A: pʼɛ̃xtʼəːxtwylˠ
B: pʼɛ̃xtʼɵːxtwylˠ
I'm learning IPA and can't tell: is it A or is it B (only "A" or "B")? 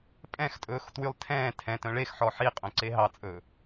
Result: B